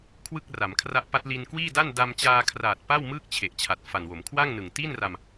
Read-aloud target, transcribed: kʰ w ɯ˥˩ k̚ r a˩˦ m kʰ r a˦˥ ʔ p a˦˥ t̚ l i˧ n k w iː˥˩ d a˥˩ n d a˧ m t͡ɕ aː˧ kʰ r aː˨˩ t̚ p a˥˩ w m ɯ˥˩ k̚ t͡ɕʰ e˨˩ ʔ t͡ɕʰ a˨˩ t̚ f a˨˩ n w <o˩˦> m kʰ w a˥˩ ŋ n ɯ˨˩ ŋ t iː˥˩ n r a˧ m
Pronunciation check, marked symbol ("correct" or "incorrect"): correct